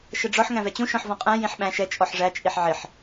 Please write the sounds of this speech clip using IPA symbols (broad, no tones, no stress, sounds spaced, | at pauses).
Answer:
ʃ ə ɖ͡ʐ ɔ ħ ŋ æ̃ v ɛ t͡ɕ ũ ʃ ɔ̃ ħ v ɔ̃ qʼ æ̃ j ĩ ħ ɓ æ̃ ʃ ɛ t͡ʃʼ ɔ ħ ʐ æ t͡ʃʼ i ħ ʕ ɪ ħ